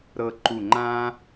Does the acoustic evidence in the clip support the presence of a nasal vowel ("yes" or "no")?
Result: yes